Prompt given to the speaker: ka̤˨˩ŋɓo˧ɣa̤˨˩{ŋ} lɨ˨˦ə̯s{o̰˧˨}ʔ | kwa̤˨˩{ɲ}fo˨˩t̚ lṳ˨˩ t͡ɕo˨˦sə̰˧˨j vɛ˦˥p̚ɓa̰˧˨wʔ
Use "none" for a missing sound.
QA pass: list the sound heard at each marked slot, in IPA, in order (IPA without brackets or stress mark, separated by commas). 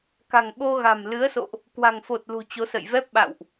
m, o̰˧˨, ŋ